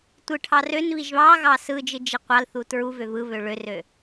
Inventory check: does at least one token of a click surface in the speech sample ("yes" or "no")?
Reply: no